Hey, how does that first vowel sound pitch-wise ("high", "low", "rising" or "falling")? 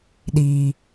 low